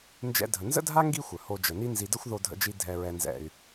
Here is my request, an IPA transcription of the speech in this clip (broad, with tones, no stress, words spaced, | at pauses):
nd͡ʒɛ̰˧dʱə˨nzə̰˦dʱa˦ ŋɡi˦xʷœ˨ho˧ d͡ʒə˨ni˦nzi˧ də˦xʷðo˧dʱə̰˧d͡ʒi˧ dʱɛ˨ɹɛ˨nzɛ̰˨y̯